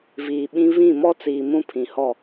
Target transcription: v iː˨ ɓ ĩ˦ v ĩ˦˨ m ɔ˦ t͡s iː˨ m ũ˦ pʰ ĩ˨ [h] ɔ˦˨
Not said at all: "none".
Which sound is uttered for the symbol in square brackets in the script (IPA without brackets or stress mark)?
h